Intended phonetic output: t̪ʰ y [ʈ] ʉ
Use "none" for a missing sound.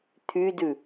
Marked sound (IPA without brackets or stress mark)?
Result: d